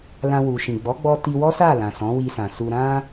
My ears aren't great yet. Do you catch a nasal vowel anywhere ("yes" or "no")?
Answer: yes